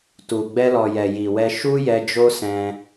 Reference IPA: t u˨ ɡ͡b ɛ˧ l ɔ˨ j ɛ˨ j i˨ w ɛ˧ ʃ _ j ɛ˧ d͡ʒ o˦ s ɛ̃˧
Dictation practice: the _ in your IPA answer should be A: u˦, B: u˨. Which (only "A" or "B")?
A